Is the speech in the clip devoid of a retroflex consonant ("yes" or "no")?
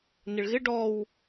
no